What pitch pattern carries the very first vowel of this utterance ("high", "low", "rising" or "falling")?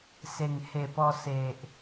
low